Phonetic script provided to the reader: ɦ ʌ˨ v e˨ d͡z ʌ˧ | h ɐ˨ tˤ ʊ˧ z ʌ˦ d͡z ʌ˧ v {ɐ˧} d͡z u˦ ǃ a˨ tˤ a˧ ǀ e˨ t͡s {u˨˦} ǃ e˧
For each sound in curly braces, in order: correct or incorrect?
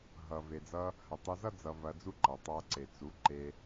correct, correct

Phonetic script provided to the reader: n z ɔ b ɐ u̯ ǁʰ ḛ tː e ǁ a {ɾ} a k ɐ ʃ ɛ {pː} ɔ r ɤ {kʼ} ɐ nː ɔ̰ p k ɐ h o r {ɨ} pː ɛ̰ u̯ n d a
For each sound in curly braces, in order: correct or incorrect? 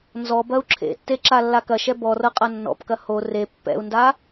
incorrect, incorrect, incorrect, incorrect

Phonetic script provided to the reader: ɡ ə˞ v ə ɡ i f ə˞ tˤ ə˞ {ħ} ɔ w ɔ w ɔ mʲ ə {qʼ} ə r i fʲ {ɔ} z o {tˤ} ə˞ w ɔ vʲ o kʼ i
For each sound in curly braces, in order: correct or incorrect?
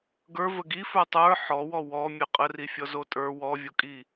correct, correct, correct, incorrect

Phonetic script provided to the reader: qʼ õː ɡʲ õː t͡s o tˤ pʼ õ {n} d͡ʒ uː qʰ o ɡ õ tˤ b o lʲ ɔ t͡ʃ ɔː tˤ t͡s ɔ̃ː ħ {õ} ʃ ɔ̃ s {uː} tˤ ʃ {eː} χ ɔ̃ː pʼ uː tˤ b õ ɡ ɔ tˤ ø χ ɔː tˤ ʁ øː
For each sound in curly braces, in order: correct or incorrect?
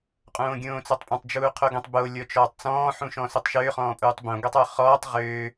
incorrect, incorrect, incorrect, incorrect

